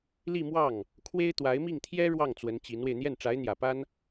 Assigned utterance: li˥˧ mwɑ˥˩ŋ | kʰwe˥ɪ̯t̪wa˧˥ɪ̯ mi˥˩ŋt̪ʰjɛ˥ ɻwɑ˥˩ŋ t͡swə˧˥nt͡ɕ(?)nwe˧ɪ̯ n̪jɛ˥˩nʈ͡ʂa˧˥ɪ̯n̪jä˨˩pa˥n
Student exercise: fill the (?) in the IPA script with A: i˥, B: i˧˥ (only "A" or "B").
B